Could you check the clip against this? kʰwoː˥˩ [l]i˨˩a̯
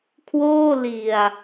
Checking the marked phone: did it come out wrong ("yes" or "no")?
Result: no